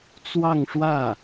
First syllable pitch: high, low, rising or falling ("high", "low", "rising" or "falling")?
falling